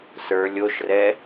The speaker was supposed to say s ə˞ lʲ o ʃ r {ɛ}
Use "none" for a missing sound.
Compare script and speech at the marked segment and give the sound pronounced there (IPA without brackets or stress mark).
ɛ